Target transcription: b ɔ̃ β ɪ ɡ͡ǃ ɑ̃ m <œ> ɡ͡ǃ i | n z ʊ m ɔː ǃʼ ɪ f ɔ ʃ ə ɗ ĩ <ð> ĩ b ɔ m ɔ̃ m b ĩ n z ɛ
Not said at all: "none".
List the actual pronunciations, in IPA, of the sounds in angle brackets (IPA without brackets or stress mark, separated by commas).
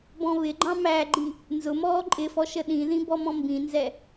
æ, ð